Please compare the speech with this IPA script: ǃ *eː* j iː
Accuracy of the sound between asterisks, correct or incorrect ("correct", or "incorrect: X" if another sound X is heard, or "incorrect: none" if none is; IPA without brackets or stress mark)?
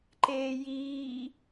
correct